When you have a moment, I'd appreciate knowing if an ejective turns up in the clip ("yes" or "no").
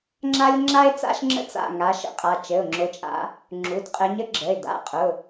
yes